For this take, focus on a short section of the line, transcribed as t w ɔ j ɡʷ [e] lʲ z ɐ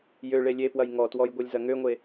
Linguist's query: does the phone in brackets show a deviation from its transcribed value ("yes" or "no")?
no